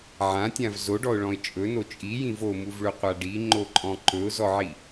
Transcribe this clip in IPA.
ʕ ã tʲ ã v z o ɖ ɔ ʊ̯ ɭ ɔ̃ ɪ̯ t͡ʃʼ ɵ n o t͡ʃʼ i j ĩ v o m u v ɭ ɵ qʷ a ɖ i ŋ͡ǃ o ǃʼ ɔ̃ ǃ ɵ ʊ̯ z ɔ ʕ i

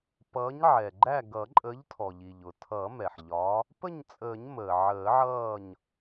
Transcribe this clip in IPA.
p ʌː˨˥ ɲ ʕ ɛ˩ ɡ͡ǃ æ˥˨ ɡ ʌ˨˩˦ ǃʼ ə˨˥ ʎ tʰ ɔ˩ ʎ i˩ ʎ ʊ˩ tʰ ʌ˨˩˦ m ɛ˩ ħ ʎ ɒ˨˥ | p ə˥˨ ɲ t͡sʼ əː˨˩˦ ɲ m əː˩ ʕ əː˨˩˦ ʕ ʌː˥˨ ɲ

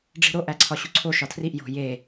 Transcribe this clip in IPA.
ɖ͡ʐ i̤ ɾ o ʔ æ ǀʰ ɒ ɕ u ǀʰ o ʃ ɒ tʰ r i ʔ j o̤ j e

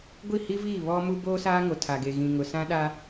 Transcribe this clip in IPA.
ɡʷ i˦˨ h i˦ v iː˦˨ β ɔ˦ m u˦ b oː˦ s aː˦ ŋ o˨ tʰ a˨ ɡ e˨ ɣ ĩ˨ ŋ ʊ˨ s ã˦ ɗ a˦

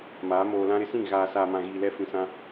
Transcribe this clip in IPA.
m aː˨˦ m oː˨ l ã˦ ɾ ɪ˦ s ĩ˦˨ ɣ aː˨ s aː˨ m ã˨ ɣ iː˨ l ɛ˦ f ĩ˨ s ã˦

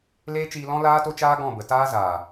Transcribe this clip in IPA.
l eː˦ t͡ʃ iː˧ l ɔ̃˦ l aː˦ t o˦ t͡ʃ aː˦ ɡ ɔ̃˦˨ b ə˨ t aː˦ z aː˨

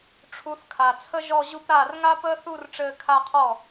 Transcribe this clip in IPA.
ʈ͡ʂʰ u˨˦ θ kʰ a˨˩ t͡sʰ ə˥ ʒ ɔ˥˧ ʑ u˥ p ɾ aː˥˩ r ŋ a˥ p əː˥ θ u˥˧ r ʈ͡ʂ ɘː˥˧ kʰ a˥ qʰ ɔ˥˩

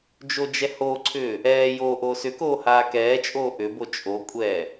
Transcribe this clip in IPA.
d͡ʒ o d͡ʒ ɛ h o ǀʰ ʏː | ɛː j o ʔ o s ʏ k oː h aː k ɛː t͡ʃʼ oː ʔ ʏ b o t͡ʃʼ o kʷʼ ɛː

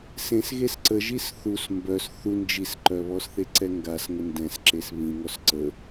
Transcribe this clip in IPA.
s ẽ s ɣ e s ǀ ə ʒ i s θ u s m b œ s θ u n d͡ʒ i s ǃ œ β ɔ s θ e ǀ ɛ ŋ ɡ a s ŋ ə n d ɛ̃ s ǁ e s β ĩ ŋ ɔ s ǀ ə

